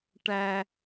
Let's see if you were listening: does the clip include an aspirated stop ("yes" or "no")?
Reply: no